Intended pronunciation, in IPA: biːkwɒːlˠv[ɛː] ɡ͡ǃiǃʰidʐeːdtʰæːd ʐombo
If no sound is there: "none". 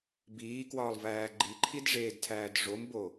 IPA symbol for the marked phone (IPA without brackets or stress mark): æː